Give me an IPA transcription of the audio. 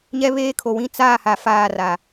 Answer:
ɲ ɛ˦ β eː˦ kʰ o˨ w ĩ˦ t͡s aː˦˨ h a˨ f aː˦˨ r a˨

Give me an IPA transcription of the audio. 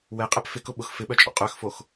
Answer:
w ɛ qʼ ɛ p f ɪ k ʊ ɓ ʊ x f ɪ ɓ œ t͡ʃʼ ɔ̰ qʼ œ x f o x

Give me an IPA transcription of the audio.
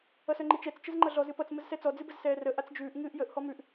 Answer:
ʌ s œ ŋ͡ǃ i t͡ʃ ɛ t͡s t͡ʃ ə z ŋ͡ǃ ʌ ɮ ɔ z ɨ p ʌ t͡s m ə z s ɛ t͡s ɔ d͡z ɨ b ə z s ɛː r ə ʔ a t͡s d͡ʒ ʉː ʔ ŋ ɨː ʔ j ə ʔ h ɔ m ʉ ʔ

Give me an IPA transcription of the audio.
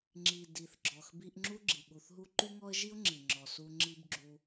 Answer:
ŋ͡ǁ i˩ d i˩ θ ɡ͡ǁ ɔ˩ x b i˦ ʔ ŋ͡ǁ u˥ ɡ͡ǁ i˩ ɠ u˨ θ ɦ u˥ ǃ y˥ ŋ ɔ˥ ə̯ ʒ i˥ ʊ̯ ŋ͡ǁ i˩ ŋ͡ǁ ɔ˨ s u˦ ŋ͡ǁ i˥ b ɡ͡ǁ u˦

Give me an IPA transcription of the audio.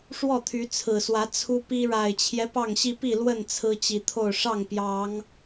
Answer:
ʂ w ɔ˥˨ t̪ʰ y˨˦ t͡sʰ ɹ̩˨˩ s w ä˨˦ t͡sʰ u˦ p i˦ ɻ a˨˩ ɪ̯ t͡ɕʰ j ɛ˦ p ɑ˥˨ ŋ ɕ i˦ p i˥˨ l w ə˥˨ n t͡sʰ ɹ̩˦ t͡ɕ i˨˩ t̪ʰ o˥˨ ʊ̯ ʂ ɑ˥˨ ŋ p j ɑ˨˦ ŋ

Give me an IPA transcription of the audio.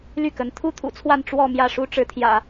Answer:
l y˥˩ k ə˧˥ n t̪ʰ u˥ t̪ʰ ṵ˨˩ t͡sʰ w a˥˧ n ʈ͡ʂ w ɔ˥˧ m j ä˥˩ ʂ u˥ ʈ͡ʂ ɻ̩˧˥ t̪ʰ j ä̰˨˩˦

